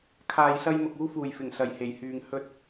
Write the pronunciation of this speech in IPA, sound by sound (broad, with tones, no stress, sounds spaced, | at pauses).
kʰ aː˨ j s ɐ˧ j m ʊ˨ k̚ uː˧ f uː˨˩ j f ɪ˨˩ ŋ s ɐ˨˩ j h e˨˩ j h yː˨ ŋ h ɵ˧ t̚